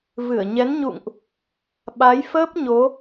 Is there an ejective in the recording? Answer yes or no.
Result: no